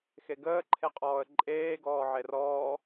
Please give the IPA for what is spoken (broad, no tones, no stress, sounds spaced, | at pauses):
x e ɡ əː ǃʰ e qʼ ɔː ə̯ ǃʼ eː ɡ ɔː ʕ e r ɔː